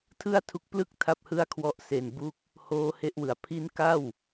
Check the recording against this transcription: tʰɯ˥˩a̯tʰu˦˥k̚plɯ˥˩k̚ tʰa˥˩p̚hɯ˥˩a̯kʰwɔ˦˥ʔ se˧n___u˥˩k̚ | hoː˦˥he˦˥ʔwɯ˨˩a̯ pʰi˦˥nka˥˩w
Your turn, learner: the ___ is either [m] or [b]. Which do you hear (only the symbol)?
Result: b